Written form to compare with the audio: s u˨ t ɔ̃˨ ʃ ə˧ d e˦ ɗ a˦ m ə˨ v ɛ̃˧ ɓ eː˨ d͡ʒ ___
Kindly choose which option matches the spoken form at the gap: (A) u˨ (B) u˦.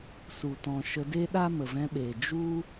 B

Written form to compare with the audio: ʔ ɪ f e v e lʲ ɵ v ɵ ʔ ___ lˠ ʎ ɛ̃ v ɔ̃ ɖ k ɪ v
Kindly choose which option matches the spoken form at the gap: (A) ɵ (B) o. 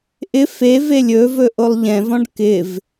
B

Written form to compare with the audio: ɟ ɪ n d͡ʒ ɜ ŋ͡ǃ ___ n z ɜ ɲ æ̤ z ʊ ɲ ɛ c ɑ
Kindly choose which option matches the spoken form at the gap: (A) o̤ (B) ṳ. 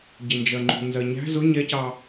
B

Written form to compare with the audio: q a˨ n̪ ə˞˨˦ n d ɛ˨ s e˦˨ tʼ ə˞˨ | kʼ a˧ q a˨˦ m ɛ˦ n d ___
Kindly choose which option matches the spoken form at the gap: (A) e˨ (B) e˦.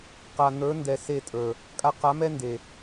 A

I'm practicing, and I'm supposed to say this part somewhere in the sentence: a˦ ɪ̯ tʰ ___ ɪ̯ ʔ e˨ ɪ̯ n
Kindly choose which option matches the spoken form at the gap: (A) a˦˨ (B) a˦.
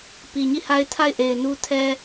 A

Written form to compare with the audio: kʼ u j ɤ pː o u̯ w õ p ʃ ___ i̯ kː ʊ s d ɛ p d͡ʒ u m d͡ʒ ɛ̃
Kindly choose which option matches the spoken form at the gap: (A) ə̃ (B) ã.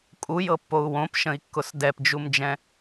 A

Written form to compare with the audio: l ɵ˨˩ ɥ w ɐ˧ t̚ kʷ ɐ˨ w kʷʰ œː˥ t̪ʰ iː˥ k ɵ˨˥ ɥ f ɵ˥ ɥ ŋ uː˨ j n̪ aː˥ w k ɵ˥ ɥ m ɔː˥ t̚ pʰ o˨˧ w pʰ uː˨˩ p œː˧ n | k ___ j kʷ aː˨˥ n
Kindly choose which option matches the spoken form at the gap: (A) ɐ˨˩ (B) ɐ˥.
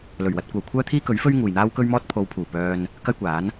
B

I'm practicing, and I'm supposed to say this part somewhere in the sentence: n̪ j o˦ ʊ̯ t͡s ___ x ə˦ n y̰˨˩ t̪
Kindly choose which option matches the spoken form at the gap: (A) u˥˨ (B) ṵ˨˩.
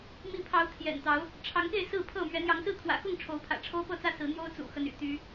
B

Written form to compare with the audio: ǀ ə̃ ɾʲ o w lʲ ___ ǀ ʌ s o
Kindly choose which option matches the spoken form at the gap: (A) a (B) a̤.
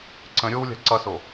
B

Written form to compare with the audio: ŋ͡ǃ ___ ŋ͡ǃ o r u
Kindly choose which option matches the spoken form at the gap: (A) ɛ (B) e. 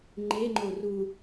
B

